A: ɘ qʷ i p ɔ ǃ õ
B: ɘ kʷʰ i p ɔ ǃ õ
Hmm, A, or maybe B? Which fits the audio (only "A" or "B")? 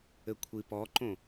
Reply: B